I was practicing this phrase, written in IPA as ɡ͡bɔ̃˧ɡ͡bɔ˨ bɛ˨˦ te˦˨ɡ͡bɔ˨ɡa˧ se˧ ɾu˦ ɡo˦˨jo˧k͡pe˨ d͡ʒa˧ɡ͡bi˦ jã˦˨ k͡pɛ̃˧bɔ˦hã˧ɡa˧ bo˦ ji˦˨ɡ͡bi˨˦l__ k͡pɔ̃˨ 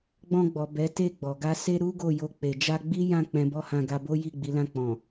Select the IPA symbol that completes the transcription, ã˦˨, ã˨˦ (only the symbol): ã˦˨